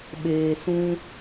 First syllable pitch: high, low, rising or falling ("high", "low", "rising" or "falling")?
low